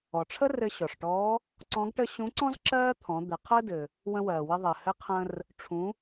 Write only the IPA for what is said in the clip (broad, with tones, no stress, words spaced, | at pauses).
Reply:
ɔ˩ʈ͡ʂʰə˥ rɘ˧ ɕɔ˩ʂʈɔː˧˥ | ǀɔ̃˧˥ɡʈə˥ ɕũ˧˥ǀɔ̃˥z ǁɜː˥t̪ʰɔ̃˩˧ d̪ɘ˩˧qʰəː˥dɘ˩ | wə̃˧wɜː˩wɘ˧ ðˤɜ˩hɘ˧˥qʰə̃ː˧r | ʈ͡ʂʰũ˩˧